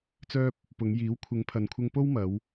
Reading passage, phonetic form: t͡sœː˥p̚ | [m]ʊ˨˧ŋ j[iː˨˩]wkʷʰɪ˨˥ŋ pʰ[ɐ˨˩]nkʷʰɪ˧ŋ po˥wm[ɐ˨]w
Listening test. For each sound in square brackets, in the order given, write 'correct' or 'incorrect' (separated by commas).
incorrect, incorrect, incorrect, incorrect